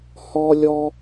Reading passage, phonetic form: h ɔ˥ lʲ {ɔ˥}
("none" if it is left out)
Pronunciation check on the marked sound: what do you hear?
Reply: ɔ˥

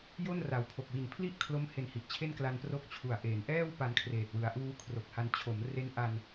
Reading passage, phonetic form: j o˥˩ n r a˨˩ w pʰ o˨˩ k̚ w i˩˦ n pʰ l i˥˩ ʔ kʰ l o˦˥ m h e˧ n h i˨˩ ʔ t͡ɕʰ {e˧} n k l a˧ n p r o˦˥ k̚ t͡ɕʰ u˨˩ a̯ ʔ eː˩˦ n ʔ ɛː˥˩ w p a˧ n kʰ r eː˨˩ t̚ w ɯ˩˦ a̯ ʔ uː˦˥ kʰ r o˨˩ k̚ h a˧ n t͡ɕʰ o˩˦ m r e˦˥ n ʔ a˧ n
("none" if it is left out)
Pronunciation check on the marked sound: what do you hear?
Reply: e˥˩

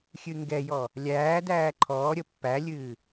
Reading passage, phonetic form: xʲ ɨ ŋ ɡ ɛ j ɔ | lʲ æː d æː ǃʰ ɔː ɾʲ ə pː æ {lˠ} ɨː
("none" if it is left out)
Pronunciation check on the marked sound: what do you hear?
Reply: lʲ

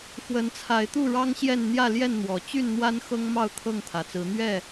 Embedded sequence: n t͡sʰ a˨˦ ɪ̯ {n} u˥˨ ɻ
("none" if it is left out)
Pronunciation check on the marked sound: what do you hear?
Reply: t̪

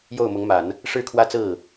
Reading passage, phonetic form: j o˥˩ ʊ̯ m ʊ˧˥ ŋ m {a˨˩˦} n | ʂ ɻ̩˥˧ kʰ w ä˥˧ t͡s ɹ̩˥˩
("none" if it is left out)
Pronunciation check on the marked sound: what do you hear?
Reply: a˨˩˦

